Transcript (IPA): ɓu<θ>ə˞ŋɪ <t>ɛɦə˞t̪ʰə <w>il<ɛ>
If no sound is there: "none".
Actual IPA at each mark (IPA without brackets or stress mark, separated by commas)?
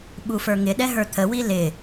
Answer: f, ɗ, w, ɪ